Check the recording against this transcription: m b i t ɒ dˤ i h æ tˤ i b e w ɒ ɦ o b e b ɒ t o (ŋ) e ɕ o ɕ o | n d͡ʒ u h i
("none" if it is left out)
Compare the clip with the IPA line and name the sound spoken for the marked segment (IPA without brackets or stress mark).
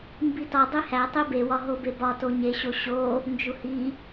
ɲ